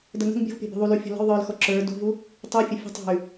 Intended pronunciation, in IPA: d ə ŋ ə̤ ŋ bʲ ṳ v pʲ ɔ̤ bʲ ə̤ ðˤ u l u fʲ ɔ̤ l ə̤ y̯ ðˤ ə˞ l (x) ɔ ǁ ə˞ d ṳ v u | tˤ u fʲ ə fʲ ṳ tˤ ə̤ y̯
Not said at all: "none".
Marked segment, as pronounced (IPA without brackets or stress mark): x